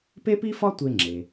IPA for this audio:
pe˥pi˥fɒ˥ tʷe˧ŋ͡ǁe˩

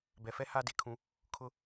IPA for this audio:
bɛ˨fɛ˦ haː˦de˨kʰũ˦ | kʰʊ˦

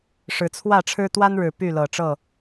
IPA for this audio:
ʂɻ̩˨˦t͡sʰwä˥˨ʈ͡ʂʰɻ̩˦ t̪wa˦nɻɻ̩˨˩ py˥˨lɤ˨˩ʈ͡ʂɤ˥˨

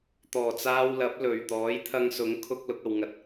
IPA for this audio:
t̪ɔː˨˩t͡saː˧wlɐ˨˥p̚ lɵ˨˩ɥ t̪ɔː˨˥jt̪ʰɐ˧ŋsʊ˨˥ŋ kʰʊ˥k̚ lʊ˧k̚ɐ˨wŋɐ˧t̚

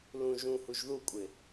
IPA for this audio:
lũ ʒũhuʒ ðukʷʼɪ

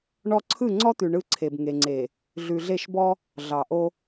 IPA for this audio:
ɳɔ˦ ǀʰɯ˦˨ŋ͡ǀɔ˦t̪ʉ˨ ɳɯ˦ǀʰe˨b ŋe˨ŋ͡ǀe˨ | ɮʉ˨ɮe˦˨ʃbɔ˦ | ɮɑ˨ʔo˦

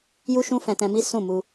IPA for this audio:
ju˦ʃũ˦ fɛ̃˧tɛ̃˧mi˦ sũ˦˨mu˧

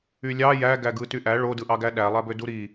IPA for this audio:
ylʲɑ jæ ɡæɡɯtyʔæ ɭodɯʔɑɡæ ɗælˠæbø duɾi

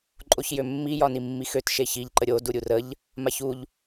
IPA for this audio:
ǃʼoçjømːi jɒnimːixøt ʃeçiʎ ǃəɾʲo duɾʲurəʎ | maçuʎ

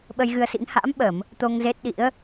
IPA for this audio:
ɓə˧jɣɨ˧ə̯sḭ˧˥ŋ ha̰ː˧˥mɓə˧˩˨m | t̪o˧ŋze˦˥t̚ ɗḭ˧˥ə̯

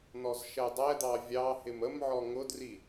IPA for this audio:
nɔzʃɛdˤɛd̪ɑ vʲɑhɪm əmʕɔ ŋʊdri

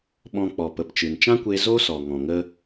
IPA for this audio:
ɓɔ̃˧ k͡pɔ˨pə˨pt͡ʃɨ˨nt͡ʃã˦ kʷe˦ zo˦sɔ˨ ŋɔ̃˨ŋə˧

